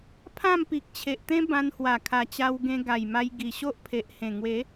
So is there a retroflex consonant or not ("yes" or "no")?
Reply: no